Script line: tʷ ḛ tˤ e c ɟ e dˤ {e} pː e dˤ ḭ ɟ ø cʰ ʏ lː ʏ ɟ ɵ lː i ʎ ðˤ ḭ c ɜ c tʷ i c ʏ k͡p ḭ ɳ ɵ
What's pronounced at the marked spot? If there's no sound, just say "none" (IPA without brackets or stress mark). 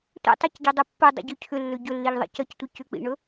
ø